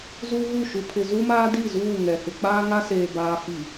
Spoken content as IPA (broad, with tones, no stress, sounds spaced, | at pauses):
z uː˦ ɣ u˦˨ ʃ u˨ pʰ ɪ˨ z u˦ m aː˦ d i˦˨ z uː˦˨ ŋ ɛ˨ h ɪ˨ k͡p aː˦ ŋ a˦ s eː˨ b aː˨ f i˨